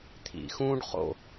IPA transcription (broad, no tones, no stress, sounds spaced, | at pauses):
t̪ʰ ḭ x ũː ɖ χ o̰